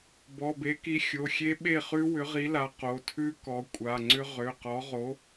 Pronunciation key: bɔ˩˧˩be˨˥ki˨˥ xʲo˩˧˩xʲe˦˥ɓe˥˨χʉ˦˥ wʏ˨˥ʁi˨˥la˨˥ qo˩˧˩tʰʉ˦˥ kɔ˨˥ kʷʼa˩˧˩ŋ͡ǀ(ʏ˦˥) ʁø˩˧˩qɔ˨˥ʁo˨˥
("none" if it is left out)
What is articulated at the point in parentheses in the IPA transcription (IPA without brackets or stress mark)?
ʏ˦˥